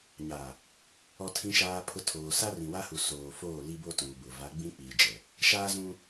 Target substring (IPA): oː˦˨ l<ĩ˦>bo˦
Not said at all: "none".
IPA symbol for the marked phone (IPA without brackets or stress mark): i˦